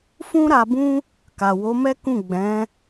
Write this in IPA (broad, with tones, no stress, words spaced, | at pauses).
fũ˦ɾa˧bũ˦ | ka˨wo˨˦mɛ˦kũ˦˨ ɡ͡bɛ̃˨˦